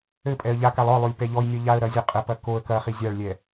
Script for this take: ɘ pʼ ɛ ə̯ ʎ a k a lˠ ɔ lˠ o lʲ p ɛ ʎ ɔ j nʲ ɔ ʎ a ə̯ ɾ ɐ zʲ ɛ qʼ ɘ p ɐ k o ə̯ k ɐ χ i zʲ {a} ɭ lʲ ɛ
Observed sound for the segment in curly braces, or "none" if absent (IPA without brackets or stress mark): a